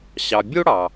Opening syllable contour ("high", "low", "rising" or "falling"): low